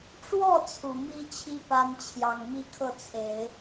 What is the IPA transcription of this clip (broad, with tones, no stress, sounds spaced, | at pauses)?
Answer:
ʈ͡ʂ w ɔ˥˩ t͡sʰ u˨˩ m i˥ t͡ɕʰ i˥ p a˥ n t͡ɕʰ j ɑ˨˩ ŋ m i˥ kʰ ɤ˥˩ t͡sʰ e˨˩˦ ɪ̯